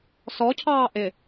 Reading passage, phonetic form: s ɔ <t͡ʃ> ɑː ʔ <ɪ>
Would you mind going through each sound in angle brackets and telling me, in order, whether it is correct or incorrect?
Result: incorrect: cʰ, correct

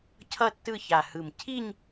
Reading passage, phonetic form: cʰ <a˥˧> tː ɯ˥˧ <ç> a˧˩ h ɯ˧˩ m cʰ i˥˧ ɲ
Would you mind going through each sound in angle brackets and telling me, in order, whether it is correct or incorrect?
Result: incorrect: ʌ˥˧, correct

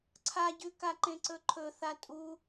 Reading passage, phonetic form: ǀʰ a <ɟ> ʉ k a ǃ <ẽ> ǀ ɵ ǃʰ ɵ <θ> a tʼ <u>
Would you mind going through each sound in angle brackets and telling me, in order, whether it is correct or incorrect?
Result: correct, correct, correct, correct

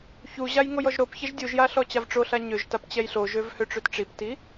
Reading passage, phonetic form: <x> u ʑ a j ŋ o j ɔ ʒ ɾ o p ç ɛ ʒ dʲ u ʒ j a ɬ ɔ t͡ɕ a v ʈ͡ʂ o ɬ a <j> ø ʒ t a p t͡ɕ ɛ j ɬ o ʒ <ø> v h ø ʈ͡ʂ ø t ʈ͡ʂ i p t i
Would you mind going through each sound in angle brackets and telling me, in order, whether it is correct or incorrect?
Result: incorrect: ç, incorrect: ɲ, correct

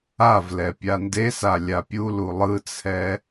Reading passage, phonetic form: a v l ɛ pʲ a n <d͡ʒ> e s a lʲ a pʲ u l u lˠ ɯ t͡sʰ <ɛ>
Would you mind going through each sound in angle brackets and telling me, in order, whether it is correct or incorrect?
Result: incorrect: d, correct

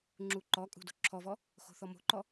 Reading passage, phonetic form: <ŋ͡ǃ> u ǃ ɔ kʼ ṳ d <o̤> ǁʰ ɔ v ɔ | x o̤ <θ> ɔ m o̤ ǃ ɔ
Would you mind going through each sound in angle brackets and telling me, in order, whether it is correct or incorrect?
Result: incorrect: ŋ͡ǁ, correct, correct

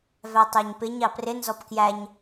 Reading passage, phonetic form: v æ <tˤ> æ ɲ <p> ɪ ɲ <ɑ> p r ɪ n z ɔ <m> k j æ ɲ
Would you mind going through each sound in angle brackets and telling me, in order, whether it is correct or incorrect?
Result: correct, correct, correct, incorrect: p

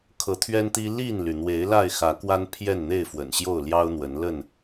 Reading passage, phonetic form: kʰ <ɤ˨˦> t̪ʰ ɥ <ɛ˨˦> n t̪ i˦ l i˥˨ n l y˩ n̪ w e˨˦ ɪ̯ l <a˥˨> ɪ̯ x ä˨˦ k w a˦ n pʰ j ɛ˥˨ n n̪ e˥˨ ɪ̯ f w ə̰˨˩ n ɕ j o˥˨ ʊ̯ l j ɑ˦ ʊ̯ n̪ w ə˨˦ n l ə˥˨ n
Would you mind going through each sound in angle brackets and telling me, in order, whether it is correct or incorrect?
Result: correct, incorrect: ɛ˦, correct

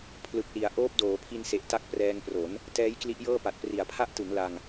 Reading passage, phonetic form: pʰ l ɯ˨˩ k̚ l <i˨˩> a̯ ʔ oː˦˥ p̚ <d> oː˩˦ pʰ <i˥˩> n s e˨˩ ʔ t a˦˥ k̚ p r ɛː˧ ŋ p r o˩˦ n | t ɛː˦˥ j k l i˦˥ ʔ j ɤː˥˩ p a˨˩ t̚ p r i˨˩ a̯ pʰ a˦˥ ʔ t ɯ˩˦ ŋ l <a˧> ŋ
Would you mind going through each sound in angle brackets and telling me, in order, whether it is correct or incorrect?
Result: incorrect: i˩˦, correct, incorrect: i˧, correct

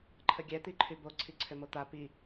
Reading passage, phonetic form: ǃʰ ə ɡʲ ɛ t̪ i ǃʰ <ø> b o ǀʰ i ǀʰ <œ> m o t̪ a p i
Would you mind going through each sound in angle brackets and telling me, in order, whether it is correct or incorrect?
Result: incorrect: y, incorrect: ø

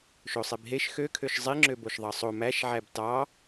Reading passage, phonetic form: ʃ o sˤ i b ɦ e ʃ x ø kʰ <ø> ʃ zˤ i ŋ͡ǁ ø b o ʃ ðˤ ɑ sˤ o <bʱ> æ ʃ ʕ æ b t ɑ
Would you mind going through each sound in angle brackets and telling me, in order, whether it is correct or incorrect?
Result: correct, incorrect: m

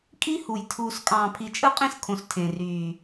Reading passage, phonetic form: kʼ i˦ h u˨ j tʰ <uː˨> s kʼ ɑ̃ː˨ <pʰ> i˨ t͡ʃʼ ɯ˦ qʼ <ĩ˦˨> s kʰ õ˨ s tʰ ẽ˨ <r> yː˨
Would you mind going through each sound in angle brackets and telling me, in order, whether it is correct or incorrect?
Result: correct, correct, incorrect: ĩ˦, correct

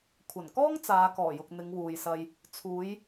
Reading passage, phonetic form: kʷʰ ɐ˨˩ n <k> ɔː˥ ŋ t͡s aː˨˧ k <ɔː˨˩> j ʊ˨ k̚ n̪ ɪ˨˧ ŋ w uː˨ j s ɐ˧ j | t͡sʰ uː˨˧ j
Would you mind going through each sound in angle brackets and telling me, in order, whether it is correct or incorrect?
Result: correct, correct

